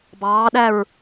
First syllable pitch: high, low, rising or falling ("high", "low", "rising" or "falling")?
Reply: rising